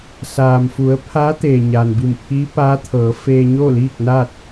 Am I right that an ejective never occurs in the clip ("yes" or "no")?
yes